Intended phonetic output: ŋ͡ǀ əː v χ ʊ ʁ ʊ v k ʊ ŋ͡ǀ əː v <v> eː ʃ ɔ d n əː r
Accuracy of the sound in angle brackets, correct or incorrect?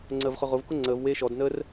incorrect